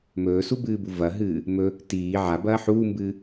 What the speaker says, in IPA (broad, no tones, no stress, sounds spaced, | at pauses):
m ɵː s u b ɨː b u v ɐ ɦ ɨː | m ɵ | t iː ʕ a b ɐː ħ uː m b ɨː